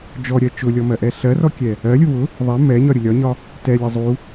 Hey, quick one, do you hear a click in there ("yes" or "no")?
no